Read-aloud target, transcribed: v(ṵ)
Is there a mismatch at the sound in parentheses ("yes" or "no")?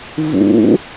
no